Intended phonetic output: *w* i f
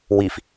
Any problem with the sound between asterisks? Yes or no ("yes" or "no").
no